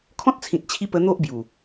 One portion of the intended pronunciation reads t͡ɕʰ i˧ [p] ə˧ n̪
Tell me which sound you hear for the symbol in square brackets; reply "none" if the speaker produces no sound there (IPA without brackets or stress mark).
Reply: p